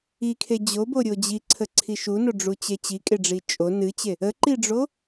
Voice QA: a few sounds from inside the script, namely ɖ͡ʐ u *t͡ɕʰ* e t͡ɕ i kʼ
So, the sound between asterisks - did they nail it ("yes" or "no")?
no